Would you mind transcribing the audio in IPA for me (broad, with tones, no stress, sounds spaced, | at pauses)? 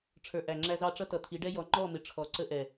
ʈ͡ʂʰ ə˞˨ ʔ æ˨ ŋ͡ǁ æ˦ z ɑ˦ ʈ͡ʂ ʌ˦ t ʌ˨ t̪ʰ i˨˦ ɖ ɛ˦ j ɔ˨˦ ŋ͡ǃ ɔ˦˨ m ɪ˨ ʈ͡ʂʰ ɔ˨˦ ǀ ə˦ ʔ ɛ˨